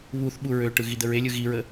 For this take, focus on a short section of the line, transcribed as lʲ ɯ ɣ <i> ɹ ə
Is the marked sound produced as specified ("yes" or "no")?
yes